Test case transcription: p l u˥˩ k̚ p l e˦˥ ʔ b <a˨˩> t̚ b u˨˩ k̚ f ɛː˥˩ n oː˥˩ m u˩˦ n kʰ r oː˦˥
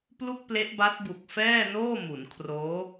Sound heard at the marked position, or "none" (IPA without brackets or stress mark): a˦˥